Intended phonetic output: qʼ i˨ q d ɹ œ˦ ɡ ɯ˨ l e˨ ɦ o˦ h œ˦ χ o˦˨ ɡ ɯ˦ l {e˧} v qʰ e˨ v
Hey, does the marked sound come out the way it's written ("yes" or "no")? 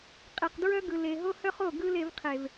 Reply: yes